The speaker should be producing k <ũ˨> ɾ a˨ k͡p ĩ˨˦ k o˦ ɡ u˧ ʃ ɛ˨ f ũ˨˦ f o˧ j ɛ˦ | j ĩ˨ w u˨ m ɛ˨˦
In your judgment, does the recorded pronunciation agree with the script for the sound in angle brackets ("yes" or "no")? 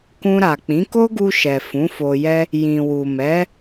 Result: no